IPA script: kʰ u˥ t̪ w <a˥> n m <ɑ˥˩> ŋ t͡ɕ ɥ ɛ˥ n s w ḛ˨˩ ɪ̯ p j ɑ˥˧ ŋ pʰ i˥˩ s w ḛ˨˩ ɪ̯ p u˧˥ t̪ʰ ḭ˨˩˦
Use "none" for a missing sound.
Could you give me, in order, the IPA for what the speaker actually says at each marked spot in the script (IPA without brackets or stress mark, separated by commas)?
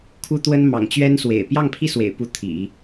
ə˥, ɑ̰˨˩